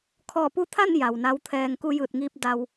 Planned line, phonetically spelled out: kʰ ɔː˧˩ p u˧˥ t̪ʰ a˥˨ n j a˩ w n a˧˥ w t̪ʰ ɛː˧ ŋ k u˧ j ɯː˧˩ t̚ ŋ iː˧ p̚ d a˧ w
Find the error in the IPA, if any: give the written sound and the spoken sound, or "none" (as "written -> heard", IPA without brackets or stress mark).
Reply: none